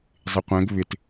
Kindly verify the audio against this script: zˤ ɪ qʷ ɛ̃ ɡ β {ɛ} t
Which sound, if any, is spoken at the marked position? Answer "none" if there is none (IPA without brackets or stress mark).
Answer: ɪ